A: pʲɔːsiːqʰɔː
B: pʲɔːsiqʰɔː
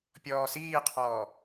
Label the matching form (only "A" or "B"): A